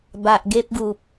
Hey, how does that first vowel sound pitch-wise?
low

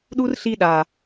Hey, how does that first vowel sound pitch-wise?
high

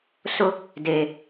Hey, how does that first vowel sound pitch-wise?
high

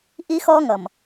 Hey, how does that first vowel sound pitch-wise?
high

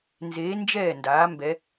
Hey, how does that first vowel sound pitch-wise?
rising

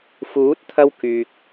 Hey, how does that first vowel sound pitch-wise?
rising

